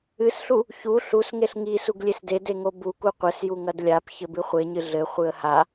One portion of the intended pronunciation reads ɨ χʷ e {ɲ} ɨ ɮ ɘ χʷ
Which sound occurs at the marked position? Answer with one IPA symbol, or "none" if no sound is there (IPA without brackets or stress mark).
ɲ